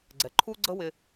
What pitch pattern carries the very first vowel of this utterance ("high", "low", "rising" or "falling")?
low